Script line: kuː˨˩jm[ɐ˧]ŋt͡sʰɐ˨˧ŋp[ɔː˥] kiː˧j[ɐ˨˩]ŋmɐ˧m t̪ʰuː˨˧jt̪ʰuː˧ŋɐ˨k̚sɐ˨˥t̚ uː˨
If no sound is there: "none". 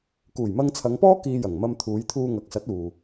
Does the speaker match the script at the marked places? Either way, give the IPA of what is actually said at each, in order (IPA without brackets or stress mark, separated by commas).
ɐ˧, ɔː˥, ɐ˨˩